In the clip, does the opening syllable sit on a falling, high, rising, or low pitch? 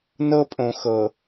high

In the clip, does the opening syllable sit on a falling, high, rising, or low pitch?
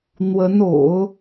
rising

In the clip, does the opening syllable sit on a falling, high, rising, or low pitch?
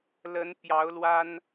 rising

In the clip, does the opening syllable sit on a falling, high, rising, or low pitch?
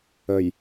low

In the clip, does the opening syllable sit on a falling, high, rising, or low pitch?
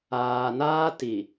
low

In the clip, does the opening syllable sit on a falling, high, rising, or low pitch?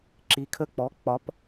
low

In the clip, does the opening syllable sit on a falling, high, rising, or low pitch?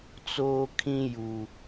high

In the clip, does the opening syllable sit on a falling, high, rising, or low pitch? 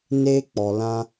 high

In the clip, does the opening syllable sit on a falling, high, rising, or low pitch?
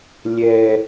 low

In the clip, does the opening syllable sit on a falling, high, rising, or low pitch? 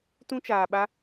high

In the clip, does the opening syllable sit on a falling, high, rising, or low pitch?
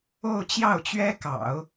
falling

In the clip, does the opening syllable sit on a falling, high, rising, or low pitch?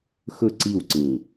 falling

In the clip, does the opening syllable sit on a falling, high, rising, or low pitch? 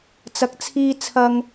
low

